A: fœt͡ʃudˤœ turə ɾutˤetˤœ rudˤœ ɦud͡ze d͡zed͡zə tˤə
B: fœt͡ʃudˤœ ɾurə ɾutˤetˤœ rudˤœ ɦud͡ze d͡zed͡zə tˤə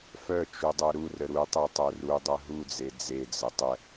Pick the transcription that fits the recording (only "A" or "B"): B